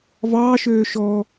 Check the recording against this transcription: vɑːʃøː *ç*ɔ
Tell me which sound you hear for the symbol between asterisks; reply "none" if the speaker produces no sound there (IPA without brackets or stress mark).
ʃ